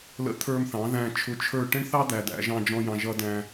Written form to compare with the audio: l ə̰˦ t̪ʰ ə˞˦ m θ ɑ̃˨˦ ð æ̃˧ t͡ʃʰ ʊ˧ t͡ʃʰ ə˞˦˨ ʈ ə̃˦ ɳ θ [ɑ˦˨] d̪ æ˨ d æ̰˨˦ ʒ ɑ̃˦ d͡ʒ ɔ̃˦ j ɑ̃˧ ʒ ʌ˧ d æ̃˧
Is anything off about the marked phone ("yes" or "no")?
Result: yes